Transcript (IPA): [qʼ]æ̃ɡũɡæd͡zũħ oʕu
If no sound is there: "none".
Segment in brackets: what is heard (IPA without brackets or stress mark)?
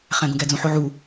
χ